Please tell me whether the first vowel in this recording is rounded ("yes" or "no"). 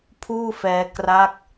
yes